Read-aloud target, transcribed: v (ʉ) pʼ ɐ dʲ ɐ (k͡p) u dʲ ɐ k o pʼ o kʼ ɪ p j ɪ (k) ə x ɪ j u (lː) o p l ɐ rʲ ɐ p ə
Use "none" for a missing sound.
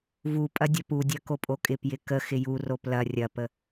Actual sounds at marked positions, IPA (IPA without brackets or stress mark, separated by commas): u, p, k, r